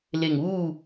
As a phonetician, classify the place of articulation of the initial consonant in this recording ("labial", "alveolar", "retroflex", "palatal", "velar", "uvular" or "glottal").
alveolar